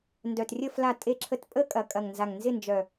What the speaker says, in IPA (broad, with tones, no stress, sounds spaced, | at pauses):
n d œ˨˩ t rʲ ə˦˨ f l a˦˨ tʼ e˦˨ ǁʰ ə˦˨ t pʼ ə˦˨ kʼ ɐ˨˩ kʼ ɐ˨˩ ŋ n z a˨˩ ŋ n z ɪ˦˨ n d͡ʒ œ˨˩